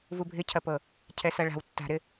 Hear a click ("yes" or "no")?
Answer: no